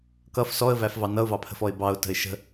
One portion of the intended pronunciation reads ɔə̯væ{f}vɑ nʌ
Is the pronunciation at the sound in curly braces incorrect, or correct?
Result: correct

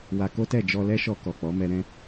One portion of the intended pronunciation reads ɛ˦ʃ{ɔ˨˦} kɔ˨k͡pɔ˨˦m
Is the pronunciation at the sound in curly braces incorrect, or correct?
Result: incorrect: ɔ˧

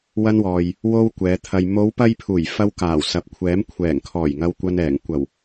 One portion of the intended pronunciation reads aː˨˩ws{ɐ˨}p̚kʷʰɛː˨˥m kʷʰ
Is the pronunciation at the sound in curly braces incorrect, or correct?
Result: correct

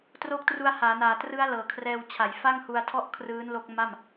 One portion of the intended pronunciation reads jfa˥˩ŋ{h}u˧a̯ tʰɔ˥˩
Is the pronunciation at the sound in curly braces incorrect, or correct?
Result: correct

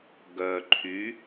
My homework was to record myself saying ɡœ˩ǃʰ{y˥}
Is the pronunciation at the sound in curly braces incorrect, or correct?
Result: incorrect: y˩˧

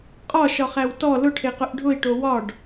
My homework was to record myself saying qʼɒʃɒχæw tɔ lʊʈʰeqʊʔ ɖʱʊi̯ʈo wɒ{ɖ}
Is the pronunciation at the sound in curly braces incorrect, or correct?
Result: correct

